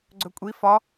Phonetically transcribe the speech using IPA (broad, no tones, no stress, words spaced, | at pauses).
ɡ͡ǀɵkʷʼi fɒ